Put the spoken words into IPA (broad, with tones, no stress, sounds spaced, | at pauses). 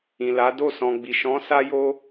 ĩ˨ l a˨˦ d o˦˨ s ɔ̃˨ ɡ͡b i˨ ʃ ɔ̃˨˦ s a˦ j o˦